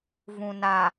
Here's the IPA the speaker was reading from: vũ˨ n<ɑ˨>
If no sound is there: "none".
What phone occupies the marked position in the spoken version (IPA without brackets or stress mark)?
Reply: a˨